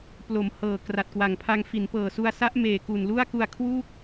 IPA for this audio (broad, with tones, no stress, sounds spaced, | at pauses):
p l o˩˦ m h ɤː˨˩ k r a˨˩ t̚ k w a˨˩ ŋ pʰ a˧ ŋ f i˩˦ n p ɤː˨˩ s u˧ a̯ s a˦˥ ʔ m eː˨˩ k u˨˩ n l u˥˩ a̯ k u˧ a̯ kʰ w u˥˩ k̚